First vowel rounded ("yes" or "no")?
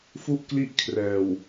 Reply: yes